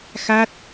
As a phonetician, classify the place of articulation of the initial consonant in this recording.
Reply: velar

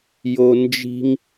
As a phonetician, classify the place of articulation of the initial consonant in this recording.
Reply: palatal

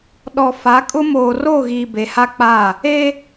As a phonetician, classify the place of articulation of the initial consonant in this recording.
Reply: alveolar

